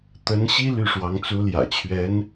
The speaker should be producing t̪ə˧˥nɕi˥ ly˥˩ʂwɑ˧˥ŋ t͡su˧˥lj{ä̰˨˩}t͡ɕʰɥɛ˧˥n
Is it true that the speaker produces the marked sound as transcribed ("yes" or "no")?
yes